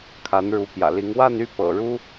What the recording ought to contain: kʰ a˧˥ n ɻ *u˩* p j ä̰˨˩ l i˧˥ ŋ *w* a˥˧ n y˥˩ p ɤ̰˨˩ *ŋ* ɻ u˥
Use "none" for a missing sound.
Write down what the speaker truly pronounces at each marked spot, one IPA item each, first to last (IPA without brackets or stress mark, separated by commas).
u˧˥, w, none